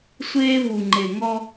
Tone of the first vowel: high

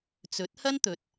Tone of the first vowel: rising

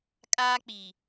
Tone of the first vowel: high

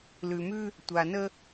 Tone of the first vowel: low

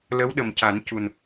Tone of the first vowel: rising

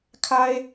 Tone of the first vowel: high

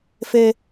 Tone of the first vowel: high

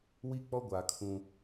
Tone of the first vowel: high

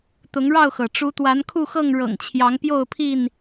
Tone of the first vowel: rising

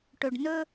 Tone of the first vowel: low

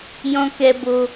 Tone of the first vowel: high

